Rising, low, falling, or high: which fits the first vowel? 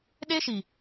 high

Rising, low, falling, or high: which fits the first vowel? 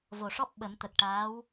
low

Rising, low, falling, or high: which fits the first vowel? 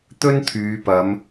high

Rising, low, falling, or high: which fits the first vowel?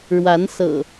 rising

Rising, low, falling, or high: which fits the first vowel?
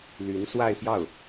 rising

